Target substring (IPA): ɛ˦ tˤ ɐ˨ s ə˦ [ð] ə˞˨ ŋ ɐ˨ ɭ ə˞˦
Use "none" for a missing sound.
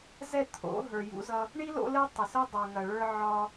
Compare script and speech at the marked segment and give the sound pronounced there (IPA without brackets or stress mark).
dˤ